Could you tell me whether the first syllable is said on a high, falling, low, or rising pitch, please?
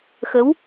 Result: rising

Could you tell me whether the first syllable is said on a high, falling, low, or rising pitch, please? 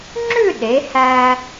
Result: falling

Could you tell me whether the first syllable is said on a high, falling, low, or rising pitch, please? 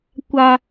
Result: high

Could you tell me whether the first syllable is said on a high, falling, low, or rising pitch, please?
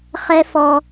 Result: high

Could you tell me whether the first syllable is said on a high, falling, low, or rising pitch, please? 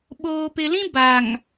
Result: low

